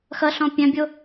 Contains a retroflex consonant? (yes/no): no